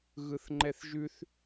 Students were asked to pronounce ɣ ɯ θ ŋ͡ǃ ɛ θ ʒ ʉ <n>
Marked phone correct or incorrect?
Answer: incorrect